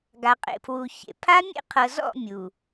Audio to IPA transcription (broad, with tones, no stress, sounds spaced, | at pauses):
ɡ a˨ qʼ ḛ˨ pʰ w u˨ ç ḛ˨ pʰ a˦ mʲ ḛ˦ qʰ ɤ˨ z ɔ̰˦˨ mʲ u˨